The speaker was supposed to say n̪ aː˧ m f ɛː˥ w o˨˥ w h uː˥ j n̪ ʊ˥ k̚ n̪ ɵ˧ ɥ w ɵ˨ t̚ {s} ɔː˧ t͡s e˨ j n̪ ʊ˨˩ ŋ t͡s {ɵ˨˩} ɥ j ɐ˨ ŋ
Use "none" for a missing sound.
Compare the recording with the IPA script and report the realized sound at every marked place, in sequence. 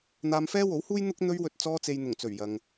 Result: t͡s, ɵ˨˩

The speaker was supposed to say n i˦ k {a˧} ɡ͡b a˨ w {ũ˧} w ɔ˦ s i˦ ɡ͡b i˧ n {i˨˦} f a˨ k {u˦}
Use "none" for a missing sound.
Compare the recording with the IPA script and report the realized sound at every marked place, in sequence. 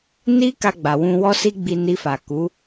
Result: a˧, ũ˧, i˧, u˨˦

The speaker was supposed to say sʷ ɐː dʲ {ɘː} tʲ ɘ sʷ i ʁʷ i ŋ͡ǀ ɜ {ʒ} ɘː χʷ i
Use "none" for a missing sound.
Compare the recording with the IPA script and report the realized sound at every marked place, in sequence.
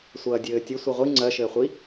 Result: ɘː, ʃ

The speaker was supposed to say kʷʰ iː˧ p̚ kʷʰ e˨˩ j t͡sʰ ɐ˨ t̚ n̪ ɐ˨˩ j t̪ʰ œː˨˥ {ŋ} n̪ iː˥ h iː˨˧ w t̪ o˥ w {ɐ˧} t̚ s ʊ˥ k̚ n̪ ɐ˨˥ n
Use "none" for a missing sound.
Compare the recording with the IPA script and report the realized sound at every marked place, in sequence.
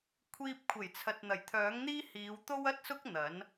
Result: ŋ, ɐ˥

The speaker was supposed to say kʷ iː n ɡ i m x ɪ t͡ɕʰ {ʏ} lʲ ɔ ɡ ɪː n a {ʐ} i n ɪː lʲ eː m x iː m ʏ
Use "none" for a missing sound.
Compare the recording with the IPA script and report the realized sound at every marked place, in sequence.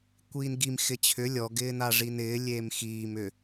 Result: ʏ, ʐ

